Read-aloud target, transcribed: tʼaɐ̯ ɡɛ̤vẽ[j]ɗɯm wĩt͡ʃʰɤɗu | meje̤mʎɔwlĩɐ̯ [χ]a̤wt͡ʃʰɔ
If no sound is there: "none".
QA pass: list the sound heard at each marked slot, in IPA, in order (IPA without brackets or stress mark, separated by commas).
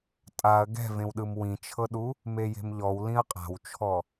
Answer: w, qʼ